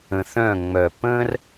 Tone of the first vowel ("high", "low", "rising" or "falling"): low